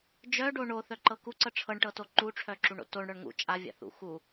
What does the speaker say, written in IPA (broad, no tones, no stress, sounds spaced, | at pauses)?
d͡ʒ œ ɖ o ɳ o θ œ ǃ ɤ k u ǀ ɤ ʈ͡ʂʰ ɤ ɳ ʈ ɤ t o ǃ u ʈ͡ʂʰ œ ǁ u ɳ o̰ t o ɳ ɽ œ ɳ ŋ ṵ t͡ʃʼ a vʲ a̰ θ ṵ x u